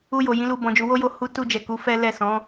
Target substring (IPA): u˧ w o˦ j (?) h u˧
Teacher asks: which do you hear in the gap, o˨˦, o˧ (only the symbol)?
o˧